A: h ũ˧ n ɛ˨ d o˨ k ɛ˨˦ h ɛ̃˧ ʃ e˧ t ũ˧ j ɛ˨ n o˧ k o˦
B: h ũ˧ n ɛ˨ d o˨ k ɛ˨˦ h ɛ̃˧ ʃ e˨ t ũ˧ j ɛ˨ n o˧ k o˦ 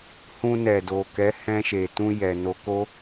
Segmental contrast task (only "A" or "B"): B